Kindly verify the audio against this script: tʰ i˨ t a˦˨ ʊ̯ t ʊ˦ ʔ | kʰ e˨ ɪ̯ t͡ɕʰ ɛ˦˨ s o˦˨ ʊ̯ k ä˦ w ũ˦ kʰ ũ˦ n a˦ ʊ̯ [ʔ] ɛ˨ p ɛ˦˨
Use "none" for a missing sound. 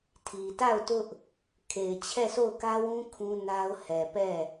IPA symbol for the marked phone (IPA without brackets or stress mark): h